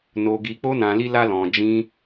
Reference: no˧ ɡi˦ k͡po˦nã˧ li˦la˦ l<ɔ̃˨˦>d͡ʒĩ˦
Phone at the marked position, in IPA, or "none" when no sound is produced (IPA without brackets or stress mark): ɔ̃˧